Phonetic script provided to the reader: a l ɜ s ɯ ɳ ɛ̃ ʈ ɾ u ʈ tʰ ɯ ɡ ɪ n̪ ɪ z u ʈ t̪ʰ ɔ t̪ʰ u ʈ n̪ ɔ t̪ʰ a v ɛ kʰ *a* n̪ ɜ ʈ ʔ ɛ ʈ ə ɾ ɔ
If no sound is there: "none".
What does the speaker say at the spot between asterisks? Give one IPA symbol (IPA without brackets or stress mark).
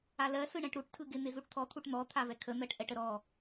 ə